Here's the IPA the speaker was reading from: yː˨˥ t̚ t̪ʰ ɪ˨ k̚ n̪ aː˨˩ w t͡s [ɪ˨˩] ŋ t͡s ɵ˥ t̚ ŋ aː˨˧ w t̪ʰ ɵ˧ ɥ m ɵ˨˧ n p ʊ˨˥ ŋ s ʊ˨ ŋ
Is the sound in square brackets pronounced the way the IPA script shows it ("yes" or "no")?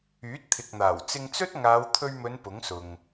no